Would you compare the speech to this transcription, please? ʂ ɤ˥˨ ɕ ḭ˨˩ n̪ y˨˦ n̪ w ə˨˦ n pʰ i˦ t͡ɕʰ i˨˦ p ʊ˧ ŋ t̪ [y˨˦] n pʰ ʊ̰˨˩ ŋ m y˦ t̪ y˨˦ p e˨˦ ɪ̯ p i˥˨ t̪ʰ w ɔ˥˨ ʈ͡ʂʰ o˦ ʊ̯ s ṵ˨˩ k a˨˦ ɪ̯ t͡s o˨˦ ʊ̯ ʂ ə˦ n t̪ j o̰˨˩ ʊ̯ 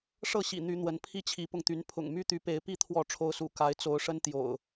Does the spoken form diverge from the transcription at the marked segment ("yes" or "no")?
no